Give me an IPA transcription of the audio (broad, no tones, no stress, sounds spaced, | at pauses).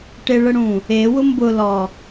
ʈ e ɭ ə ɽ ũ | e w ʊ m b ʊ l ɔ